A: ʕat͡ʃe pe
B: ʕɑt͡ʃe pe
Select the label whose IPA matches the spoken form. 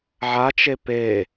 A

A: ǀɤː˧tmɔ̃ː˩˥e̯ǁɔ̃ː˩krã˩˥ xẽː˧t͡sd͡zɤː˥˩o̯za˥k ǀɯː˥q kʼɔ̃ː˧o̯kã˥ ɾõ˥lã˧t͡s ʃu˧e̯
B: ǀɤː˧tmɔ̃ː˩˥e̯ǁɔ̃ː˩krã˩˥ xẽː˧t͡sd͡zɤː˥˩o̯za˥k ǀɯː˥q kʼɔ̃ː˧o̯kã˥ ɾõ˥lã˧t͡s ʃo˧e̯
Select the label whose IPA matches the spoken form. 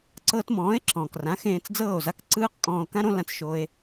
B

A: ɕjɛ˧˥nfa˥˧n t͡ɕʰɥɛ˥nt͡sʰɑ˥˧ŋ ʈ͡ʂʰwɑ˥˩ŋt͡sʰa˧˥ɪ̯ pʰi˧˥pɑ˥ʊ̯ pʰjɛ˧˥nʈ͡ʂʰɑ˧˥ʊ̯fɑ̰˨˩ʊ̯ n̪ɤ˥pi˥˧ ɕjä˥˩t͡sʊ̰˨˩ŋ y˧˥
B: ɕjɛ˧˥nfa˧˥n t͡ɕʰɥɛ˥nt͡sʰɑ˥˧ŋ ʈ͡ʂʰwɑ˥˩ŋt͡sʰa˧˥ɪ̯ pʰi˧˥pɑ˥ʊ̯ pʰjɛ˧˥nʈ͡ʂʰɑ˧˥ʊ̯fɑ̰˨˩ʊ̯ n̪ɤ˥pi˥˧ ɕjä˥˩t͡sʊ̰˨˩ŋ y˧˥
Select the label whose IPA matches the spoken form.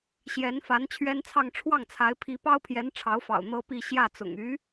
B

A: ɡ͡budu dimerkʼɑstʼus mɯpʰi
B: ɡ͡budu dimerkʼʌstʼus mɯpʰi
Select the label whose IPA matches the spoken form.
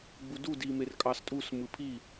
A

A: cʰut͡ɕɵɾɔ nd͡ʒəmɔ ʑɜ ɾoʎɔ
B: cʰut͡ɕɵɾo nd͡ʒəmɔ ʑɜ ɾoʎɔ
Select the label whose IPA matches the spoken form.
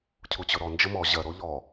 A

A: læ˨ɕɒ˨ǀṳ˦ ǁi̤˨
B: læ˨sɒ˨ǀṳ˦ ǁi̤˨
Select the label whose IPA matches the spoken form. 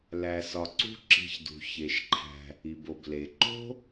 B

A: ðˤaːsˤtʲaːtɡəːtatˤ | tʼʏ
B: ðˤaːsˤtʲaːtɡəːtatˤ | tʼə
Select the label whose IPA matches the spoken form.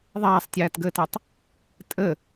B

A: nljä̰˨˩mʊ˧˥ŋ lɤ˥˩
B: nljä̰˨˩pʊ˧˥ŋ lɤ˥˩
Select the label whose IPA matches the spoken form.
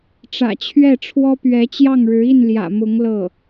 A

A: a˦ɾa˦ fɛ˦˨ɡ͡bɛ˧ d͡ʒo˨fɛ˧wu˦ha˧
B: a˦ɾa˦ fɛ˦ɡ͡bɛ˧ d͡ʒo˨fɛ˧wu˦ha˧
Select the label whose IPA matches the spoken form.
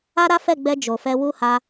A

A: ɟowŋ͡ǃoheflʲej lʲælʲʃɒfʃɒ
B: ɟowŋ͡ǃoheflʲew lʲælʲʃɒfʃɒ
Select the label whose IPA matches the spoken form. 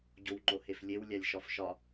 B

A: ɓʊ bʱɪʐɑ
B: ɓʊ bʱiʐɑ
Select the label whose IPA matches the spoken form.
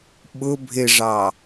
A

